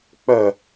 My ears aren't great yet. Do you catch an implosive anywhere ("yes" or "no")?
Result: no